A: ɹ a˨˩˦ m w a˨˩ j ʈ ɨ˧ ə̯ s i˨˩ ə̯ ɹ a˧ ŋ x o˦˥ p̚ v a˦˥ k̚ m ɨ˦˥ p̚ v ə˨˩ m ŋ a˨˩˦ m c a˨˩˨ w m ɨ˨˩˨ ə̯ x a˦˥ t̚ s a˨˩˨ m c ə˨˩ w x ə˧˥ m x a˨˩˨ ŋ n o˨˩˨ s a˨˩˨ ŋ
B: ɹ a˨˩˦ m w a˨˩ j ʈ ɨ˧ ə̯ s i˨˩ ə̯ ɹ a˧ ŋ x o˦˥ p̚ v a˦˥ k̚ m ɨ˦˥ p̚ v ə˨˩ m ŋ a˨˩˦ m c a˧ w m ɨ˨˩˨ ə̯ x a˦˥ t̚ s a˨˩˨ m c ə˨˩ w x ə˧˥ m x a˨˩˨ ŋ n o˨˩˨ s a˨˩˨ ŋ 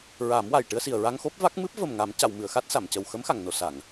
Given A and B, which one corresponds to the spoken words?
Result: A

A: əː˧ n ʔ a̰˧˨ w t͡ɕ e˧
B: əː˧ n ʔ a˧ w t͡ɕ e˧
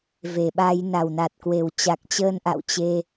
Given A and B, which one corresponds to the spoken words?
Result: A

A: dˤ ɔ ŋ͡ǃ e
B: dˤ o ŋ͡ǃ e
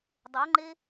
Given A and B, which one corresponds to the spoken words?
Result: B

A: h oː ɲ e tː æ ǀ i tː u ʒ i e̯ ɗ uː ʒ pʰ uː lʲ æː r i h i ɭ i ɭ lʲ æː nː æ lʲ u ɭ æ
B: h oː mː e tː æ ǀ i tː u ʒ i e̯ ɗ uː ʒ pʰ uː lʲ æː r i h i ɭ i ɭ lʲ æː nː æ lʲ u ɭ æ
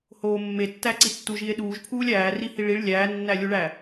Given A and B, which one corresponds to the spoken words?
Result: B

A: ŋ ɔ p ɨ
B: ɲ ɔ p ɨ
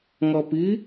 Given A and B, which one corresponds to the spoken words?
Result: A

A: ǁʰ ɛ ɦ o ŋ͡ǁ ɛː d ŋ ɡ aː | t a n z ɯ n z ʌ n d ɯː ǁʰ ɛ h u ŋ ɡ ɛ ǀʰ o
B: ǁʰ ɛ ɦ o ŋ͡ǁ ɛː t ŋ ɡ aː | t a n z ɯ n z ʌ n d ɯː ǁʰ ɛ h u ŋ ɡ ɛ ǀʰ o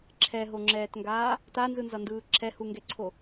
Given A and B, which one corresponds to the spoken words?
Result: B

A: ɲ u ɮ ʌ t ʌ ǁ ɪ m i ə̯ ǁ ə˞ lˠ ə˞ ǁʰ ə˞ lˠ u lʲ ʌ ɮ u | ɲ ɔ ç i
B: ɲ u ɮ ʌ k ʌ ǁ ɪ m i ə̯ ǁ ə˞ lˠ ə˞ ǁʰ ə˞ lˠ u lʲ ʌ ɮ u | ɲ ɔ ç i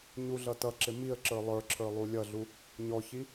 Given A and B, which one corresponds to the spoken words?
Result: A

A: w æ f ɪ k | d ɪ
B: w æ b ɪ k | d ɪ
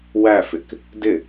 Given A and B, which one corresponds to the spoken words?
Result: A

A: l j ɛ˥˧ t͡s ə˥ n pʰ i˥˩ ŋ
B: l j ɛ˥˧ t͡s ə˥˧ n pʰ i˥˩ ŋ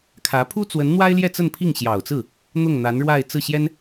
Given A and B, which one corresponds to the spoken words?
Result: B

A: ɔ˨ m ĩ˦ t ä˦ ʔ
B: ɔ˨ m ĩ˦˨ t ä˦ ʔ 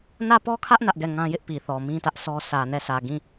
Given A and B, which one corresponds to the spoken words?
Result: A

